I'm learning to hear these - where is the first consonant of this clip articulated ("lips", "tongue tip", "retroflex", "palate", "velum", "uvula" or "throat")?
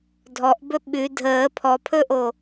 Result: tongue tip